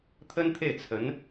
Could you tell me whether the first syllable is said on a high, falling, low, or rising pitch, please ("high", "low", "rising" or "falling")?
high